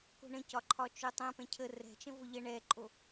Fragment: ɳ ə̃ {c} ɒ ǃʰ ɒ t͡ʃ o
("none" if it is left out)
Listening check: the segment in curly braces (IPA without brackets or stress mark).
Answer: c